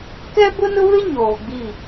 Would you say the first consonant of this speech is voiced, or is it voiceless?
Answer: voiceless